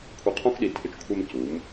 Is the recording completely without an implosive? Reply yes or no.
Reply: no